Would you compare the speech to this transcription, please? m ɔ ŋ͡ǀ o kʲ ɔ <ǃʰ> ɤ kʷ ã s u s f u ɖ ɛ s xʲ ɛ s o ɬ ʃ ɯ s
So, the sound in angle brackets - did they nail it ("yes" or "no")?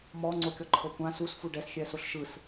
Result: yes